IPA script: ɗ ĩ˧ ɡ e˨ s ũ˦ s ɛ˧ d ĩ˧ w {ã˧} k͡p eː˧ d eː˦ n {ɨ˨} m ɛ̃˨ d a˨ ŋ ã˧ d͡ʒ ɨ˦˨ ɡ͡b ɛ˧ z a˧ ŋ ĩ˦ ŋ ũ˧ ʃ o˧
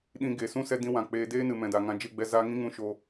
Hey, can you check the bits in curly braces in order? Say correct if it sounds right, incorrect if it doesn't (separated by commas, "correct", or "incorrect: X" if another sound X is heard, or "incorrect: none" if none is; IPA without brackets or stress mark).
incorrect: ã˨, correct